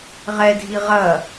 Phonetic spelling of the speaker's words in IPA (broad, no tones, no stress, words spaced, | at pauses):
ʁɛdʱi ʁɐ